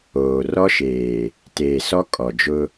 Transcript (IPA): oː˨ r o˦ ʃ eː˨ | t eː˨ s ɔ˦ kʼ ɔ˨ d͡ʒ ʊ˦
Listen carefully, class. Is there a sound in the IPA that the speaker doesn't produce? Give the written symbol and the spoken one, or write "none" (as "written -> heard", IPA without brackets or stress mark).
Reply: o˦ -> ɔ˦